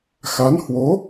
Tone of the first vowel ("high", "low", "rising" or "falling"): rising